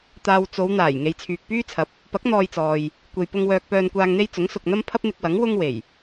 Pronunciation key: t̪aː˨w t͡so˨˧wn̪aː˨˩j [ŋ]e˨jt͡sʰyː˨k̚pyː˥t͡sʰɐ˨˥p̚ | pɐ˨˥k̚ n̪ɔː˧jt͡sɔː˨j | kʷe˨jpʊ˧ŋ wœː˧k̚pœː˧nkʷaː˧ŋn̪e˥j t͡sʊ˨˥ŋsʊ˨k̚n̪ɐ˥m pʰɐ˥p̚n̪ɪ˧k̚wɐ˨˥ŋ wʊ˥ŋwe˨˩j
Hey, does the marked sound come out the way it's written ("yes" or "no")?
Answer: yes